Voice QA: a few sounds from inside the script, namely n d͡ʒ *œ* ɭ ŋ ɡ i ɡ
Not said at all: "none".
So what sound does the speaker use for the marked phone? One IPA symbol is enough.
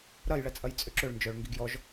œ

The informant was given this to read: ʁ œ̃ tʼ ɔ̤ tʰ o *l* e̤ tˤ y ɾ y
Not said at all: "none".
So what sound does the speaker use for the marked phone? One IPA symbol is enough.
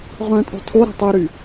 ɾ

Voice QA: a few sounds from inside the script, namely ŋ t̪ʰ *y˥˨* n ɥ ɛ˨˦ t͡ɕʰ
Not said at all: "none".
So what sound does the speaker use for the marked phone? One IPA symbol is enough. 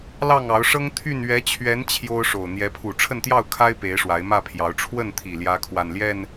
y˥˨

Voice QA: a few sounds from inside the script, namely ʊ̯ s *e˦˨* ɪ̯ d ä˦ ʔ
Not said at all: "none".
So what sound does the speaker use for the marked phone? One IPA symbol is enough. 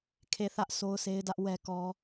e˦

